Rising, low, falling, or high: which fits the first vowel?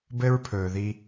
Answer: high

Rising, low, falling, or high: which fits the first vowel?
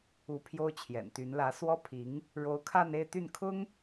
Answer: rising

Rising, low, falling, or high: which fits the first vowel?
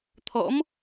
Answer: rising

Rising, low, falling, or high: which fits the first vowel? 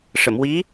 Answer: low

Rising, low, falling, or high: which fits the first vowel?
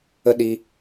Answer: high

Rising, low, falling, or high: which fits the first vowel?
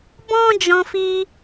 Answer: high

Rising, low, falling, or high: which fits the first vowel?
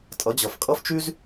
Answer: rising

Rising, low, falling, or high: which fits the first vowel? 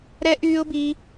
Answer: high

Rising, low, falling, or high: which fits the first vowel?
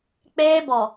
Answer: high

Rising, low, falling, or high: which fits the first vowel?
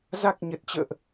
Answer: low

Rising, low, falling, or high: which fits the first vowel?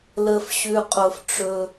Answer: low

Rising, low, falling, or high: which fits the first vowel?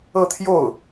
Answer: falling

